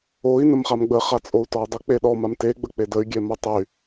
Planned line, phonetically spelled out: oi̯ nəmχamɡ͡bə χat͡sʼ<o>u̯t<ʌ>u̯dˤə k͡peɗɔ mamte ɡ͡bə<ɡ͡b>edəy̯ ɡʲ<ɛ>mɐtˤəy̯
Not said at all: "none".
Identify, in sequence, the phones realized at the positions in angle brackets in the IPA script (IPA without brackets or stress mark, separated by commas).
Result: o, ɒ, k͡p, ɛ